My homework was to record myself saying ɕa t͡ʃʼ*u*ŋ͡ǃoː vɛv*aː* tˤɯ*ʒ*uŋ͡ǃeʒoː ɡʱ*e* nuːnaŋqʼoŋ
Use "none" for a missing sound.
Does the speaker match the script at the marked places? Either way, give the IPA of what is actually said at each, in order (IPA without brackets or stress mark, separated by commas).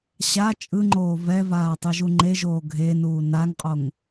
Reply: ɯ, aː, ʒ, e